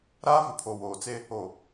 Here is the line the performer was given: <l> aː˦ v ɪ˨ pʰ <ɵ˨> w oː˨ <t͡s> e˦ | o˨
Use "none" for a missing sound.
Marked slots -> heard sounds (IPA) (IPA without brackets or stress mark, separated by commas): ɾ, o˨, t͡s